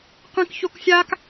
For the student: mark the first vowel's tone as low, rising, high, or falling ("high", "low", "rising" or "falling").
high